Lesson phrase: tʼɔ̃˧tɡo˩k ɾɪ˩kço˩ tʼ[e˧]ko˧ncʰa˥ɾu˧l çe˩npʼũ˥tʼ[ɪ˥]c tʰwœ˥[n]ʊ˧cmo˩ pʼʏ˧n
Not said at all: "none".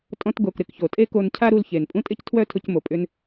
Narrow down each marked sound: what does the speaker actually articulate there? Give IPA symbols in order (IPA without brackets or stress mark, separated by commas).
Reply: e˥, ɪ˥, tʰ